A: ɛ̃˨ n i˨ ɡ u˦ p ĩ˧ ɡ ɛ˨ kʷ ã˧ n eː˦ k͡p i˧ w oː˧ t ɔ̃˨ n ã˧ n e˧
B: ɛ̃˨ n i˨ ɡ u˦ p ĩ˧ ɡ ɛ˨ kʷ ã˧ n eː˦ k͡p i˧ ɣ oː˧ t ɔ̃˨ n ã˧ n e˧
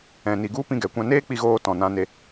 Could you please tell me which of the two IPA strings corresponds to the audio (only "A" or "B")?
B